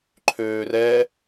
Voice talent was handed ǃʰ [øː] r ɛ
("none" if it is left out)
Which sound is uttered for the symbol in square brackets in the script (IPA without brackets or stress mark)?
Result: øː